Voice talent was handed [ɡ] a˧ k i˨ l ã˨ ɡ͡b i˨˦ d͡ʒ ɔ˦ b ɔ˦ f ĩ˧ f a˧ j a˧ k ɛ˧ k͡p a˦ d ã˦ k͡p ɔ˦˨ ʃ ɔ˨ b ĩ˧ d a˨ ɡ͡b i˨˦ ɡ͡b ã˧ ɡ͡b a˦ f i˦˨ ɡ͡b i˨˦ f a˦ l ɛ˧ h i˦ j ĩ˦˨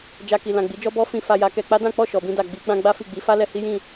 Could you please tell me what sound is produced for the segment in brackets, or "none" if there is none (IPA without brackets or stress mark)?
d͡ʒ